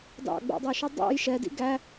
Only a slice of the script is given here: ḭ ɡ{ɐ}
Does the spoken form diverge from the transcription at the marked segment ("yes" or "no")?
yes